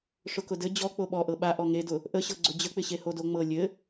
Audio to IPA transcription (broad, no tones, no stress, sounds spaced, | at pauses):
ʂ ʊ k ʊ d ɘ d͡ʑ ɔ k͡p o ɓ ɔ ʔ ɤ ɓ a ʔ ɔ ŋ e d ʊ | ʔ ə ɕ ɤ ɡ͡ǀ ʊ d͡ʑ ə k͡p ɪ ɕ e h o d o ŋ͡m ɤ lʲ ɘ